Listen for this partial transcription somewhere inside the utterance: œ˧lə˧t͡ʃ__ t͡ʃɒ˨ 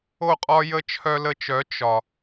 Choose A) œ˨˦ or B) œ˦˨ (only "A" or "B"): A